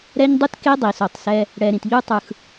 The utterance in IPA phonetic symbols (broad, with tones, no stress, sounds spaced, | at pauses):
ɾ ɛ˦ ɲ dˤ u˦ t k e˦ dˤ i˨ s o˨ tˤ s ɛ˦ | ɽ ɛ˨ ɾ ĩ˨ t ʎ u˦ tˤ ɯ˨ x